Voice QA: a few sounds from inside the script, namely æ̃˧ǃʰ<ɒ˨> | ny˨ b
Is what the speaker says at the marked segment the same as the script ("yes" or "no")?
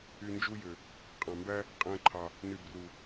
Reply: no